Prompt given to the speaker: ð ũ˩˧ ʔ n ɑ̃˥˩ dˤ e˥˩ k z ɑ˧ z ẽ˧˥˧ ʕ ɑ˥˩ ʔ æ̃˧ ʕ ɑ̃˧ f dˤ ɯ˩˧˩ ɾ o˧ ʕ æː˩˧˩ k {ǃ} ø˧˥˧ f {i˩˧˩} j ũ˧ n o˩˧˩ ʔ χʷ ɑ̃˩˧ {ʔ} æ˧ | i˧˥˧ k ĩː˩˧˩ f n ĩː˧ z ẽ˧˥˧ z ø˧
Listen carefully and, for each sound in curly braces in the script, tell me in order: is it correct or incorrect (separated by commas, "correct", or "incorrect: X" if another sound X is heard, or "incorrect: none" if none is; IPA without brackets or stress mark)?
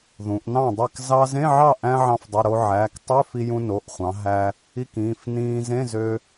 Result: incorrect: tˤ, incorrect: i˧, incorrect: ɦ